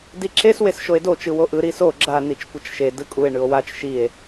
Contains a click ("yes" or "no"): yes